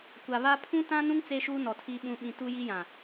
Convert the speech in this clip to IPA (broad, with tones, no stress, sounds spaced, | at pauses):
kʷ a˨ β a˦ pʰ ũ˦ t ã˦ n ũ˦ ŋ t͡s e˦ ʃ u˦ n ɔ˨ tʰ i˦ ɓ ũ˦ ɓ ĩ˦ t u˦ j i˦ j ã˨